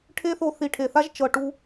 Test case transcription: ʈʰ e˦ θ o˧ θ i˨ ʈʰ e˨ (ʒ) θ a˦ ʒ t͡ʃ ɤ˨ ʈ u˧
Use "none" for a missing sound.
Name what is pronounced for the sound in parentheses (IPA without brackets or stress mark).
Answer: none